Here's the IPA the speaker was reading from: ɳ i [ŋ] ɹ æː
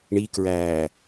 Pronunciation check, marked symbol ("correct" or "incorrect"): incorrect